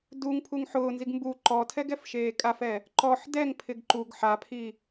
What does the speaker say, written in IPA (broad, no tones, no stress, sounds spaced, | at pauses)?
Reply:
d u ŋ pʰ u ŋ ħ ʊː n z i ɡ m b u ǃ ɔ tʰ ɛ ɡ ɛ f ʃ eː kʼ a f ɛ | ǃ ɔ ħ d ɛ ŋ pʰ ɪ ɡ ǃ u ɡ ħ a pʰ i